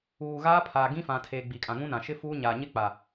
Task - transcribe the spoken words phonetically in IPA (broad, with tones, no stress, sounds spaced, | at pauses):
uː˨ ɣ aː˦ pʰ aː˨ ɡ ĩ˦ f ã˨ tʰ eː˨ ɡ͡b i˨ kʼ ã˨ ŋ ũ˦ n ã˨ ʃ ɪ˦ f uː˦ ɲ aː˨ ɲ ɪ˦ k͡p a˨